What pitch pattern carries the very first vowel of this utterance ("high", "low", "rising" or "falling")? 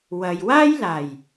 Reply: low